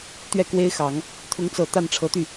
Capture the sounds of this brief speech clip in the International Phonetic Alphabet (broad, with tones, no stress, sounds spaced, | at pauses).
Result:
t̪ ɥ ɛ˥˩ k w e˥ ɪ̯ x ɑ˨˩˦ ŋ | t̪ʰ ʊ˧˥ ŋ t͡s ɤ˨˩ t̪ a˥˩ n ʈ͡ʂʰ ɤ˧˥ t̪ y˥˩